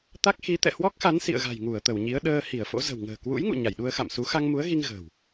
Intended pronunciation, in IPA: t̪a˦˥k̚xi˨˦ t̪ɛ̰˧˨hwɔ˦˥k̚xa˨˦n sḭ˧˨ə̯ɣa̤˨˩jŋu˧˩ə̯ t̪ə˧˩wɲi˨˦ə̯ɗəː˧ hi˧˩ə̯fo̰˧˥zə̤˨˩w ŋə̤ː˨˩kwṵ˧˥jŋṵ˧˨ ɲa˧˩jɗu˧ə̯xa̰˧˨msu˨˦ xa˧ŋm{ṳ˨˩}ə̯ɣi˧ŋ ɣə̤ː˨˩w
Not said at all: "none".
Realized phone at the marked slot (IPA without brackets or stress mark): u˨˦